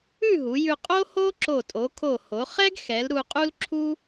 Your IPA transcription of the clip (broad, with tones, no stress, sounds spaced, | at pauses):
ʉ˥˧ ɦ u˩˧ j ʉ˧ qʼ o˥ h o˥ ǁ o˧˩ tʼ o˩˧ kʰ o˧˩ h o˩˧ χ ɛ˥ ɡ x ɛ˩˧ l ɾ u˧ qʼ u˥ l ǁʰ u˥